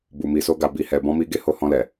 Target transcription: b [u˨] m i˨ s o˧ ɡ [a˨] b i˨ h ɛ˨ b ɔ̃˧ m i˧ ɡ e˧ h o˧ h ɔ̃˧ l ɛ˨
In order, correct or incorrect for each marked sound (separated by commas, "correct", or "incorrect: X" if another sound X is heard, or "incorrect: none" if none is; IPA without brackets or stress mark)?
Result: correct, correct